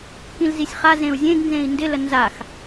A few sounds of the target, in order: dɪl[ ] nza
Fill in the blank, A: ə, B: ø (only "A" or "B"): A